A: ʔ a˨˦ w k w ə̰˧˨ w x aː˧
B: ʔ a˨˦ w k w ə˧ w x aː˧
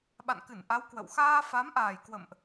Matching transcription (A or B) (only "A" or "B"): A